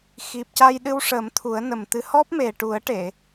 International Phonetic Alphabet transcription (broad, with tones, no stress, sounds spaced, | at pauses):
x i˨˩ p̚ c a˧ j ɗ ɨ˧ w ʂ ə˨˩˦ m t̪ʰ u˨˩˦ ə̯ n ə˨˩ m t̪ ɨ˧˥ h ɔ˦˥ p̚ m e˨˩ ʈ u˨˩˦ ə̯ ʈ e˨˩˨